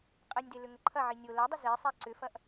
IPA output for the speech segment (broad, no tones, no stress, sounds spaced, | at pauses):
qʼ ɛ nʲ d e l ʏ ŋ ə ǃʰ ɐ ʕ i nʲ o l ɛ dˤ ə z e sˤ ɛ ǀ ʏ f ɐ ʔ